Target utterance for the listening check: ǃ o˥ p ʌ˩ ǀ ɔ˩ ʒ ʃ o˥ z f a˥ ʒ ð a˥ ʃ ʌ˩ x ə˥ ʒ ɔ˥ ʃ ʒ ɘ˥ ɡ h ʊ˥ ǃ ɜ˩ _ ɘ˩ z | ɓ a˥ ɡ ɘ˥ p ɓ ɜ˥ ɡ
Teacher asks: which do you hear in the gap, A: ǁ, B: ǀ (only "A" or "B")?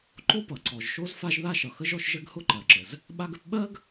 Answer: A